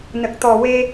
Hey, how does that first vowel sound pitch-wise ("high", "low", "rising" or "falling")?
low